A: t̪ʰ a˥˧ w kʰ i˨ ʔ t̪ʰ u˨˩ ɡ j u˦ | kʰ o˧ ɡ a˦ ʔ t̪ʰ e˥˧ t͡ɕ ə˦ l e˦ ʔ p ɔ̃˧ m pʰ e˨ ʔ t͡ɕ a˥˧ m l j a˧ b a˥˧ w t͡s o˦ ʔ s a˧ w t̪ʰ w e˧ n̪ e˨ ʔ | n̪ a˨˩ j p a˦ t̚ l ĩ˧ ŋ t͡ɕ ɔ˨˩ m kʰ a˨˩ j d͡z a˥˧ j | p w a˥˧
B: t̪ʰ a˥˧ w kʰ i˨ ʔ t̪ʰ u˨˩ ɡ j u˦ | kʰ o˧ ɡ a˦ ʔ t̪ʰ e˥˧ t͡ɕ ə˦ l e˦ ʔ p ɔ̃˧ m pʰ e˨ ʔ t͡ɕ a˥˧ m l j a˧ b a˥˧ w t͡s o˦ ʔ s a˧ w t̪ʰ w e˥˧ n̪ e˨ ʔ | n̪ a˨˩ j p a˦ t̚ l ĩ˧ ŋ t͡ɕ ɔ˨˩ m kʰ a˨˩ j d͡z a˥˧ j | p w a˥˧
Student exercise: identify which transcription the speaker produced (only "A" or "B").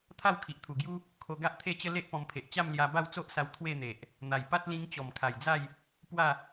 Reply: B